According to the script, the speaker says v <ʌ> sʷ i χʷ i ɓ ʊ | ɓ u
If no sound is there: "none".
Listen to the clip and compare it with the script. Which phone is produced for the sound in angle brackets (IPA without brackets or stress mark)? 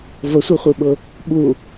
ə